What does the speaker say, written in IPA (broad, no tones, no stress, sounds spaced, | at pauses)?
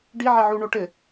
ɖ i ʕ ɛ ʕ u ɳ o ʈ ɘ